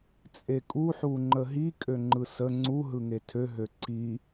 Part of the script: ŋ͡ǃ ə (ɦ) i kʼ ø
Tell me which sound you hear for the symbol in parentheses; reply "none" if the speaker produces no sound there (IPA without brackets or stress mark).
ɦ